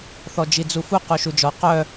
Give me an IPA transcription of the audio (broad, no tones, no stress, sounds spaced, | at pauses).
θ ɔ d͡ʒ i d͡z u f u q u ʃ u d͡ʒ ɔ q œ